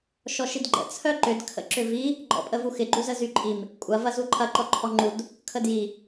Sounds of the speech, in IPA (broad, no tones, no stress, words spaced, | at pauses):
ʃɔʃidɡ͡ǃə̰ t͡sʰœǃʏd kʰə̰ǁʏvi | ɡ͡ǃɔ̰pʼəvuxɪ ɡ͡ǃuzəzyǃʼim | kʷʼɐ vɐzuǃʰɐ ǃɔǃʰɔŋ͡ǃud | kʰədji